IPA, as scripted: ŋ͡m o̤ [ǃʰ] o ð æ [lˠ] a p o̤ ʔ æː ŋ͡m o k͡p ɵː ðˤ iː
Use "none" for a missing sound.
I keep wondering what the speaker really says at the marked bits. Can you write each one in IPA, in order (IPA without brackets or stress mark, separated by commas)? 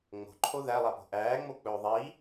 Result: ǃʰ, lˠ